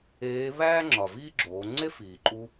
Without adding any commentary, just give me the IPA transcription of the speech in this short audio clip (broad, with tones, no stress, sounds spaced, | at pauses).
eː˧˥ β æː˥ ŋ͡ǁ ɒ˩ v iː˥ ɡ͡ǁ oː˩˧ ŋ͡ǀ e˥ f iː˩ ǃʼ u˧